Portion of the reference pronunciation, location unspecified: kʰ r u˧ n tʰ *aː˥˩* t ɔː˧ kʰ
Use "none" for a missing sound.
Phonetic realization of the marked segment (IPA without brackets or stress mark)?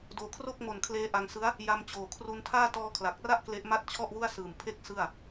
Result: aː˥˩